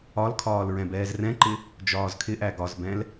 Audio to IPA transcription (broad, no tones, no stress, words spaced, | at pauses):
ɒlkʰɒːl ɹɛ̃bɛːzrɛ̃ǃɪ | d͡ʒɒːzkʰɪʔæ ɡɒzbɛ̃l